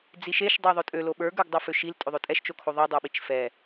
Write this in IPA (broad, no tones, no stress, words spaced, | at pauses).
d͡ziʃeʃ dˤɛðˤøtʼø loɓə˞ ɡə˞ɡdˤoføʃil tʼøðˤøtʼɛʃ t͡ʃokʰoðˤi dˤə˞ɓit͡ʃfɛ